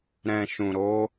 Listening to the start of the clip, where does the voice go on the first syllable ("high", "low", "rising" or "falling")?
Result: low